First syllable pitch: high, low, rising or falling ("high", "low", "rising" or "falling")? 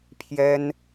high